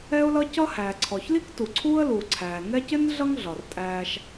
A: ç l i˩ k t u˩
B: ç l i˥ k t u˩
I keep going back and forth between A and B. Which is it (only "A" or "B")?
B